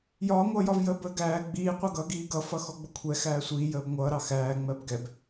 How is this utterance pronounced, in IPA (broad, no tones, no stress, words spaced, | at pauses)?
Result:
jɒːŋʷʌːjɒvjəː bəːɡæː ɡ͡biː qʷʌɡʌɡiː ɡʌfʌ xɔɡ͡bʊkʷʰɛ xæːsʷiː jəːbŋʷʌːɾɑ xæː ŋ͡mɜbɡɛb